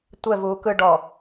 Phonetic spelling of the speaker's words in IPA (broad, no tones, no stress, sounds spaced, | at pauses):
tʷ ɛ v uː k ɯ ɖ ɔ